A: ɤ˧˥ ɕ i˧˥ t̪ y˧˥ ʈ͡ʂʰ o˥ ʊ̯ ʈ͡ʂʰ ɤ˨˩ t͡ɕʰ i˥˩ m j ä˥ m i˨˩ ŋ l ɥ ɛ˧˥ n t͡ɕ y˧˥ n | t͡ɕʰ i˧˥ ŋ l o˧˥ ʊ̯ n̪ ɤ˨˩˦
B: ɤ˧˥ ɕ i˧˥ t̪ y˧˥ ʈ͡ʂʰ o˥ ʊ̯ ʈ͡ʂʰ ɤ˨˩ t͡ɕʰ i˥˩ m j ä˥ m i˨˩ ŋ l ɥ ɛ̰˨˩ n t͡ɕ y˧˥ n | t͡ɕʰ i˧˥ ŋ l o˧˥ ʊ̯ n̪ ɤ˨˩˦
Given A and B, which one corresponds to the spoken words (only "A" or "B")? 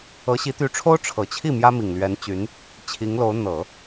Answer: A